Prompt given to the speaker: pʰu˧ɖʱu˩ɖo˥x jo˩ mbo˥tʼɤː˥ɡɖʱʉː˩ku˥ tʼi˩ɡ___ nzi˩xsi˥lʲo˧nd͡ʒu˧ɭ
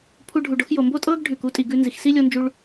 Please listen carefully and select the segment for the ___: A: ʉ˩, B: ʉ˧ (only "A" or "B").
B